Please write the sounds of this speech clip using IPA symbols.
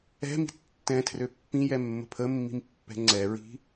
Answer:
ɛ̤mi̤ tːɛ̃tʰrø pːĩjɛmːə̤ pʰəmːi̤mpːɛ̤ ŋ͡ǀɛɹi̤

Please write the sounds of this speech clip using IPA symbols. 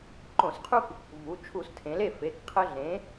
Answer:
ǃõ˧˩˧sqʰu˦k | vu˩˧˩ t͡ʃʰu˧˩˧stʰẽ˩˧le˥˩fe˩˧˩k qʰə˦ɮẽ˨˥

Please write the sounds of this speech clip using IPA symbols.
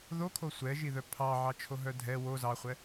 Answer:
ðokʰo sʷɛʒiðœ pʰɑʕɑt͡ʃʰoɦœ dʱɛ wo zɑχʷɛ

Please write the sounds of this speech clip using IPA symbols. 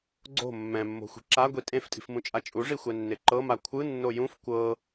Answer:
ɡ͡ǀo̤ mːɛ̃mːo̤xʷi̤ ǁaɡʷi tʼẽftʼi̤fmũt͡ʃʼa t͡ʃʼuʐixʷɛnːe ǃɤma kʷʰɯnːo jũf kʷɤ

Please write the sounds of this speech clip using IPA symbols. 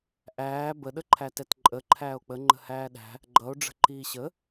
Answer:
ʔæː bə ɗəǃʰætɛtǃʼə ǃʰæːo̯k͡pə ŋ͡ǃə̤hæːɗæ̤ | ɡ͡ǃʌo̯ ɖ͡ʐə̤ǃiːɕə

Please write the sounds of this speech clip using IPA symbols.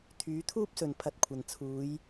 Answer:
t̪ʰyː˨˥t̪ʰuː˥p̚sɵ˨n pʰɐ˧t̚kʷʰɐ˨n t͡sʰuː˨˧j

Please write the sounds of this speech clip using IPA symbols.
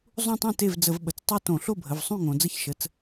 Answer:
zˤũ˥˧tˤũ˥˩te˥˩vd͡zə˧˩˧v ɓə˩˧t͡stˤu˥˧tõ˧˩˧ ɬo˥˩bʱə˩˧˩vsˤũ˥˩ŋõ˩˧ d͡zə˥˧çʃə˩˧˩t͡s

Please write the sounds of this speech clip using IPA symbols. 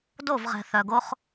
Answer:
do˦˨vʁɛ̤˨ θœ˨ɡo˦χ

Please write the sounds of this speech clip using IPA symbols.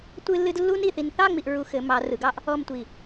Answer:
tʷɨ˥lːɨ˥d lːu˥ni˧˩θi˧n θɑ˥˧ ŋ͡mi˧ʔɹu˧ xɘ˩˧mɑ˩˧ rɯ˩˧ɡɑ˥ʔ | ɔ˥˧mtʷi˧˩

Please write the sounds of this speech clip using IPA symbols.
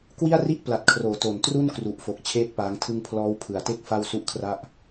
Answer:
kwi˥˩a̯ri˥˩ʔpla˨˩t̚kʰroː˩˦ to˨˩n tru˥˩nkru˨˩ʔfo˨˩k̚ t͡ɕʰeː˥˩t̚paː˦˥ŋtʰɯ˥˩ŋ pʰlɔː˦˥wpʰɯ˨˩a̯te˥˩k̚ fa˥˩wsu˥˩ʔkʰra˥˩ʔ

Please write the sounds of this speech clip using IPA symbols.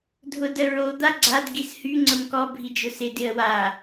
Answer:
dʱʊdəɹo d̪aɡ͡ǀad ɡishy ŋ͡ǀəmkɔ bʱid͡ʒʊsɪ dɪə̯wa

